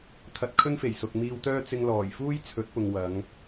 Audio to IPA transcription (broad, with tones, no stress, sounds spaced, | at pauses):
t̪ʰ ɐ˨ t̚ kʰ ɵ˥ n f e˨˩ j s ʊ˨ k̚ m iː˧ w t̪ œː˥ t͡s ɪ˧ ŋ l ɔː˨˩ j f uː˥ j t͡sʰ ɵ˨˥ t̚ p ʊ˨ ŋ w ɐ˨˧ ŋ